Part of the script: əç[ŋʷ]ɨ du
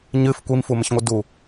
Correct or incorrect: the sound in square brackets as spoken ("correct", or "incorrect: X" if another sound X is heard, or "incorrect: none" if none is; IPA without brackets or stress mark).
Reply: correct